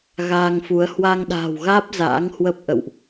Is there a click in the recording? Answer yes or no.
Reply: no